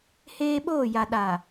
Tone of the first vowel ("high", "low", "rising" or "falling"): high